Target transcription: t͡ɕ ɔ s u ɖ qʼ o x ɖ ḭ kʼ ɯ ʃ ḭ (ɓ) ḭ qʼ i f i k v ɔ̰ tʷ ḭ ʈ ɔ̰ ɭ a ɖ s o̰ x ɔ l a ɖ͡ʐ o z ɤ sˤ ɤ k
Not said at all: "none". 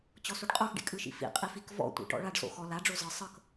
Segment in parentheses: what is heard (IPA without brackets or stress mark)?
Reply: f